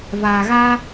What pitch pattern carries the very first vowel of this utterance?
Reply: low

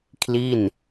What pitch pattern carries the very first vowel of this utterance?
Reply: falling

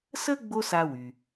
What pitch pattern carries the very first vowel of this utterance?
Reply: high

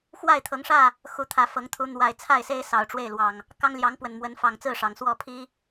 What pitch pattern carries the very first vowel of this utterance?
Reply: falling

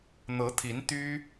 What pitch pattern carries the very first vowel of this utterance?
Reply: rising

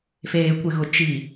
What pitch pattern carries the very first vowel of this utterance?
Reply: low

